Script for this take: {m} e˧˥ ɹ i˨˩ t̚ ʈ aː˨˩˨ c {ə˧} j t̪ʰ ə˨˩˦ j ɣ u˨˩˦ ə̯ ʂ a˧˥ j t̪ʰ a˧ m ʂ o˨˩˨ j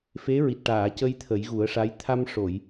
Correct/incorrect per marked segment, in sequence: incorrect, correct

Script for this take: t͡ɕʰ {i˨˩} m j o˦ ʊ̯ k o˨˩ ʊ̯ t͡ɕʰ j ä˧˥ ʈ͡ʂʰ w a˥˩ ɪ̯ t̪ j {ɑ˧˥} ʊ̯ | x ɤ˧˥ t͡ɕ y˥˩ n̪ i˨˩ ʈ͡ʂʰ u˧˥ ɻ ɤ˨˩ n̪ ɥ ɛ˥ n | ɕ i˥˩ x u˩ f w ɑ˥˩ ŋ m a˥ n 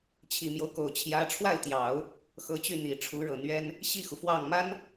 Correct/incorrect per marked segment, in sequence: correct, incorrect

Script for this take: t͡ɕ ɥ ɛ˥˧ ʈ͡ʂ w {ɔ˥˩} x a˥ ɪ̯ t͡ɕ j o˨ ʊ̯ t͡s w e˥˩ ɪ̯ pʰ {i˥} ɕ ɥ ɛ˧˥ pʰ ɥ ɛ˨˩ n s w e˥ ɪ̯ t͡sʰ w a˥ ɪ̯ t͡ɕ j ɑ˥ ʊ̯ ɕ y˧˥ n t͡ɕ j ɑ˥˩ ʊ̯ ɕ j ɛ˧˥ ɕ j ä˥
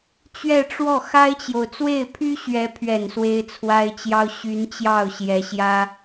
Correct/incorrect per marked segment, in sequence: correct, incorrect

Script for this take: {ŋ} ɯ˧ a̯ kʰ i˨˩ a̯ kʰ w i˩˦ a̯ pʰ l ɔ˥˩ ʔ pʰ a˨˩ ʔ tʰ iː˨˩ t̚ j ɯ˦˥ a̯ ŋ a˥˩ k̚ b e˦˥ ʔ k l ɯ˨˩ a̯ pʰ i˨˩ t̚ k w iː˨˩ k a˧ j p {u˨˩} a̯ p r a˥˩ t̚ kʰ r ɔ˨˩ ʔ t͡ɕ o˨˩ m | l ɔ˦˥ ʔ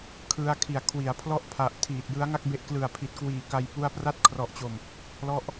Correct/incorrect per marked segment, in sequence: incorrect, incorrect

